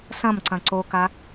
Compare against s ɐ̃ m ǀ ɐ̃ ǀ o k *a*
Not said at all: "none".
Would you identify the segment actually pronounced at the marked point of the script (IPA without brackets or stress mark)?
a